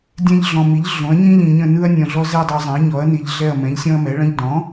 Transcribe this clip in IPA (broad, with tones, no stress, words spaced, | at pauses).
dʲɛ̃˦˨ʎɮɔ̃˨mi˩˥ʎ ɮõ˩˥ɐ̯ɲĩ˦ʎĩ˨ɲə̃˦˨ nɯ˦ɐ̯nʲɔ̃˨ɮɔ˦ zɛ˦˨ dˤu˨zˤɛ̃˩˥ɐ̯ɲɔ˩˥ɐ̯ ni˨ʎɮɛ˦˨ɐ̯mɛ̃˩˥ʎ sʲɔ̃˦ɐ̯mɛ˩˥ɭə̃˦ʎ dɔ̃˩˥